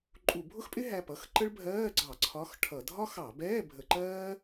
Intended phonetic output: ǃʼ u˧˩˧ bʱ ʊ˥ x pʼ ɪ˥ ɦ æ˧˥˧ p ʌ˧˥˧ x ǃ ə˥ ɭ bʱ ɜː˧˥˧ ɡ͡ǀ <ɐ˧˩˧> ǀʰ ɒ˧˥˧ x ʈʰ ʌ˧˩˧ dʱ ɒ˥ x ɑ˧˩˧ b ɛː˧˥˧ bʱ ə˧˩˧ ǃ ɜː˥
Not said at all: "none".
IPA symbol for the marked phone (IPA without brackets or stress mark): ɑ˧˩˧